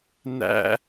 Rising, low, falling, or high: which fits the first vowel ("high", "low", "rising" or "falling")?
high